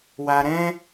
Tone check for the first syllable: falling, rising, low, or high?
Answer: low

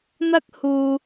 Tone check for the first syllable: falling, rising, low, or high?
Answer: high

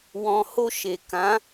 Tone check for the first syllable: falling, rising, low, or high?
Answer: low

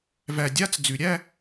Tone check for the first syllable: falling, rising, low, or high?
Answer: low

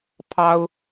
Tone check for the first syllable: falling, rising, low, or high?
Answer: high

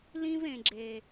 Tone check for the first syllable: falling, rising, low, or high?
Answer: high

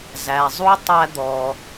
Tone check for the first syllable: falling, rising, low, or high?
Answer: low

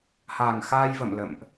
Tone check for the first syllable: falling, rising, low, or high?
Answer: low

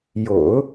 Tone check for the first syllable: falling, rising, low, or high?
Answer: low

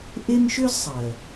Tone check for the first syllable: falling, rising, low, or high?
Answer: high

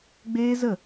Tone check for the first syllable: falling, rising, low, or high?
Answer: high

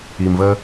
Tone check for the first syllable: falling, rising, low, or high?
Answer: low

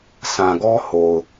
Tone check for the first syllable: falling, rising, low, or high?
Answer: low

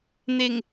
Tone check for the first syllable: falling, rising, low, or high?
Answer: low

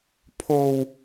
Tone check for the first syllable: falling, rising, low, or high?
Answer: low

